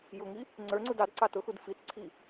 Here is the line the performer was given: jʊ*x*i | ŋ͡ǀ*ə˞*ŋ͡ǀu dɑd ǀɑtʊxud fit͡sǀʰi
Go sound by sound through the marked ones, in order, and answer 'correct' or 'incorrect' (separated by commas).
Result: incorrect, correct